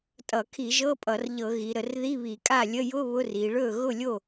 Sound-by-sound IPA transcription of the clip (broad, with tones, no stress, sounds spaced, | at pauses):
tʼ ʌ˧˩˧ kʰ i˧˩˧ ʒ ɤ˧˥˧ pʼ ʌ˧˩˧ r ʎ ɤ˧˩˧ ɣ i˩˧ ɾ ə˧˩˧ r ð i˧˥˧ β i˧˩˧ kʼ a˥˩ lʲ ə˧˥˧ j ʊ˧˥˧ β ʊ˧˥˧ r i˩˧ ɭ ɵ˥˩ ɣ ʊ˥˩ lʲ o˥˩